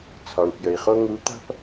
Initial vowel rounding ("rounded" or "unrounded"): rounded